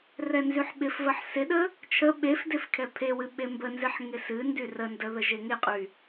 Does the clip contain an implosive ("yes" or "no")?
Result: yes